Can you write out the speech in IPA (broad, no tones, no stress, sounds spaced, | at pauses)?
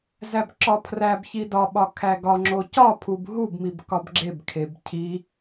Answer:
z æ b ǁ ɒ pʰ r æ b ç i d ɒ ɓ ɒ kʰ æ ɡ ɒ ŋ͡ǁ o c ɒ pʰ u b ɦ u b m i b k ɒ b ɡ͡ǁ e b kʰ e b cʰ i